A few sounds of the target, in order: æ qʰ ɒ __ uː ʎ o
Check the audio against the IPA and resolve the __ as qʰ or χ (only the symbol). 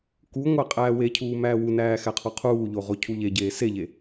qʰ